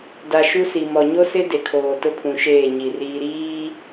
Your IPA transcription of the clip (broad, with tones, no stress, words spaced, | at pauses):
da˨ ʃu˦si˨ mɔ˨ɲo˦sɪ˦ de˨kʰoː˨ tʊ˦pʰũ˨ʃeː˦˨ ɲi˨riː˦ ɾiː˦